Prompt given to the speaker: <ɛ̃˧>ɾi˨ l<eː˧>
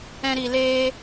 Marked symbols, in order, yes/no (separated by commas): yes, yes